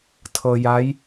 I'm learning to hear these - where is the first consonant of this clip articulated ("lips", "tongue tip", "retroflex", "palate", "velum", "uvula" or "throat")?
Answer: tongue tip